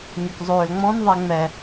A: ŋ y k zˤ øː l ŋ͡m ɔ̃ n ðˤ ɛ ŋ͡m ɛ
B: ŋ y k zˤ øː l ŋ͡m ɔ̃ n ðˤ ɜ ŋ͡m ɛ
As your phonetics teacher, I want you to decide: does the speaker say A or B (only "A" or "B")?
A